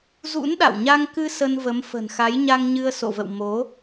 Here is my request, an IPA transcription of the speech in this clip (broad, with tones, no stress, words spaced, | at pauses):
zṵ˧˥nɗa̰˧˨wɲa˧ŋkɨ˧ sə˧nvə˨˦mfə̤˨˩nxa˨˦j ɲa˧ŋɲɨ˧ə̯so̰˧˨və̰˧˨w mo˨˦